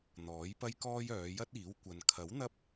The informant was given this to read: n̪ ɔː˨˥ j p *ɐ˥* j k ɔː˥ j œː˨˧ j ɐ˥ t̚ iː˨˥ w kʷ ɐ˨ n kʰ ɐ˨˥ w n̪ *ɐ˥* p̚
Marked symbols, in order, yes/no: yes, yes

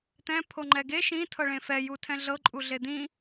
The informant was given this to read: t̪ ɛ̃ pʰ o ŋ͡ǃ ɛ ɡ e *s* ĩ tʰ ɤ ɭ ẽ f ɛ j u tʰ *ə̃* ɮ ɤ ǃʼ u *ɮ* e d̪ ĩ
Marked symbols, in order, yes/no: no, no, yes

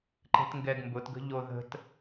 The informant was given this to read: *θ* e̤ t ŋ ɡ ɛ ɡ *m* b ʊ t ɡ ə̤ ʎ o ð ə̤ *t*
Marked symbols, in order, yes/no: no, yes, yes

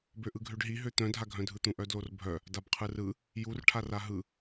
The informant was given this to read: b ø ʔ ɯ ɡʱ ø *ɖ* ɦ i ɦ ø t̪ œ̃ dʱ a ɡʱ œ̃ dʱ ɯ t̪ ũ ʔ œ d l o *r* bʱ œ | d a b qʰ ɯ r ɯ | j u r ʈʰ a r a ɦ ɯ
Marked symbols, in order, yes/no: yes, yes

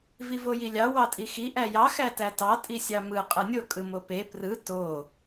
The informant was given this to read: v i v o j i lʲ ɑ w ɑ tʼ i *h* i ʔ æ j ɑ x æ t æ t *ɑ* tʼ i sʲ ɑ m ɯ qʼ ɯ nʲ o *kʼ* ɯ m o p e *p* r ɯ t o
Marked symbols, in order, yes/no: no, yes, yes, yes

